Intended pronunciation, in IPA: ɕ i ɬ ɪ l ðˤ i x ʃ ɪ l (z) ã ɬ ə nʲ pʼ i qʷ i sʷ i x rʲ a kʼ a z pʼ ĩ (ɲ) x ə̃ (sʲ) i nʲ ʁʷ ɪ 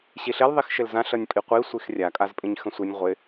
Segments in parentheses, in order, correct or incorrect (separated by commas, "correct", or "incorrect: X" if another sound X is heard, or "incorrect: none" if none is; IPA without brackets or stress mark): correct, correct, incorrect: sʷ